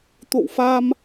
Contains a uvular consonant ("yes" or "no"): no